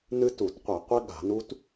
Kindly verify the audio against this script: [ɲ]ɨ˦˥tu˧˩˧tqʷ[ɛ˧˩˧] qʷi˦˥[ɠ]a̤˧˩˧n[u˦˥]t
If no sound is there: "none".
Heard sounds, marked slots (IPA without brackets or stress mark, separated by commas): n, ɛ˧˩˧, ɠ, u˦˥